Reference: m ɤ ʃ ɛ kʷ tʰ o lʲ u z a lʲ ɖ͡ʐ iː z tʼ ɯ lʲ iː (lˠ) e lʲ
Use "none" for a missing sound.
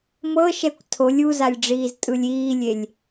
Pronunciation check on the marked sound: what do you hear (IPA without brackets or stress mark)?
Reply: lʲ